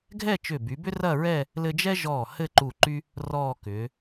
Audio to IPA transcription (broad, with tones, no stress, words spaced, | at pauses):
ɡʱɛ˥˧t͡ʃʏ˧˩by˩˧bʏ˥ rɐ˥˧ɹɛ˥˧ | lɘ˧d͡ʒɛ˥ ʒɔː˧˩ hɘ˥˧ǃu˧˩ǃy˥ | rɔː˥˧ kʏ˩˧